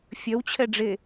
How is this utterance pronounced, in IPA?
fʲ œ w t͡ɕʰ ɛ ɖ͡ʐ e

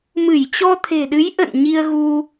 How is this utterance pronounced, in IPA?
m ɨ˧˩ j t͡ɕ ɔ˧ t̪ʰ e̤˨˩ ɗ ɨ˨˦ j ʔ ə̰˧˨ n ɲ i˧ ə̯ ɣ u˧

